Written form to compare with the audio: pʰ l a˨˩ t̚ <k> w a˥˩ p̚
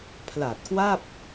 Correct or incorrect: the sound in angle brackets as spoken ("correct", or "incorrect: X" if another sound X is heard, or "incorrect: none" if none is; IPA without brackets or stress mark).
correct